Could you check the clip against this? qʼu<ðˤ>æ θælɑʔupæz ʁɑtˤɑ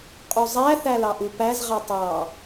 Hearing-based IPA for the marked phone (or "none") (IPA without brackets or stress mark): zˤ